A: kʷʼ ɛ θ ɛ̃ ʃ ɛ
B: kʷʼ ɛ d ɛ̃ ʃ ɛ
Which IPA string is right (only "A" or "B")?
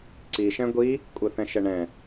A